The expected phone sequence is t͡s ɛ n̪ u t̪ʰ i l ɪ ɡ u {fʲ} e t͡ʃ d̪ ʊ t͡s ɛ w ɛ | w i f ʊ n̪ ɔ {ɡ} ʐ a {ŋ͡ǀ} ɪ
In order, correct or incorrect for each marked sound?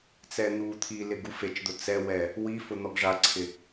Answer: incorrect: f, correct, incorrect: ǀʰ

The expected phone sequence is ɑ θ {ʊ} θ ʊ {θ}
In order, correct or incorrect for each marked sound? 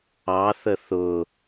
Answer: incorrect: ə, incorrect: none

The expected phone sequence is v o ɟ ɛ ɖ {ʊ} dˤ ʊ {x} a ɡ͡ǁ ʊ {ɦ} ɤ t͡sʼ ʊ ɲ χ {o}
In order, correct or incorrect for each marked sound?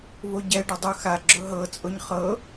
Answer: correct, correct, correct, incorrect: ɤ

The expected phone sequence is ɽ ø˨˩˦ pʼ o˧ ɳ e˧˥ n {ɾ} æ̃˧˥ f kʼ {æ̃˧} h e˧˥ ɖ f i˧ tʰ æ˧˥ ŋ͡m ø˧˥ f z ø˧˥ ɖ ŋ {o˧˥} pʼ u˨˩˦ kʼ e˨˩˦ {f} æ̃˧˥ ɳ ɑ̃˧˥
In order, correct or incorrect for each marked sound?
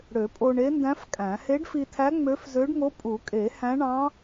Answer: incorrect: d, incorrect: æ̃˨˩˦, correct, incorrect: h

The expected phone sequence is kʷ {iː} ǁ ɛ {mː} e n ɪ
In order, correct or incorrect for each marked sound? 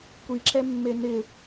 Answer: incorrect: i, correct

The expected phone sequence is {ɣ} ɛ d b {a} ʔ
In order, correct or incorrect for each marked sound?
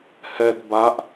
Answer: incorrect: h, correct

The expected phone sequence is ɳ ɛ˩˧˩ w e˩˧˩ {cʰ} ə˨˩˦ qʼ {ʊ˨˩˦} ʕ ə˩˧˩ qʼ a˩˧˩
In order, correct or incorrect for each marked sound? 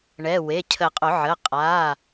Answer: correct, correct

